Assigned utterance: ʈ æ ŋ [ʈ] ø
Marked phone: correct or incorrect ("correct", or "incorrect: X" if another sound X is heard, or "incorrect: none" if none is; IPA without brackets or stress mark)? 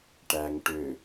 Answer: correct